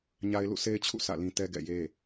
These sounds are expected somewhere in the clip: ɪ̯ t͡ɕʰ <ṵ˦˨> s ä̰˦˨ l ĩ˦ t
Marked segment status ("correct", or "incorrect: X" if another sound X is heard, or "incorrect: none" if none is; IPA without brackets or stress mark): correct